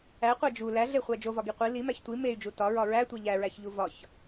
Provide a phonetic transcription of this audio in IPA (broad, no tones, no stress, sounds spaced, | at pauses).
æ qʷ æ d͡ʒ u l æ ɮ e χʷ æ d͡ʒ o v ɒ ɡ i qʷ i l i m æ ç tʷ i m e y̯ d͡ʒ u t ɒ ɹ ɒ ɹ æ tʷ e ʎ æ ɹ æ ç ʎ u v ɒ ç